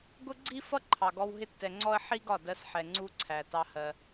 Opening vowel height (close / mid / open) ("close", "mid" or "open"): close